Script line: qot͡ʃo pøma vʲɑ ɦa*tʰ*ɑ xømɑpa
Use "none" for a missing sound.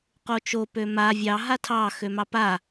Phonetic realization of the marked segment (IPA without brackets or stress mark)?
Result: tʰ